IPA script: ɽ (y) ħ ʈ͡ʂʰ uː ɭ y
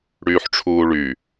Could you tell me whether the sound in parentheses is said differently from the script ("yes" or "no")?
yes